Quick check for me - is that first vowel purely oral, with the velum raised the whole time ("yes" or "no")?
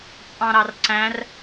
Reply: no